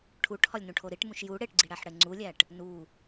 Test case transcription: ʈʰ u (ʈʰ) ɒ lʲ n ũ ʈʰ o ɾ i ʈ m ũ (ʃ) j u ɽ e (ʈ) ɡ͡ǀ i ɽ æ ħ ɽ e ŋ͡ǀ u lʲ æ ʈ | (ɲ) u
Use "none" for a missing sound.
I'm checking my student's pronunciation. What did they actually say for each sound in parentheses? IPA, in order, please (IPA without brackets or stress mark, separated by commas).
ʈʰ, ʃ, ʈ, n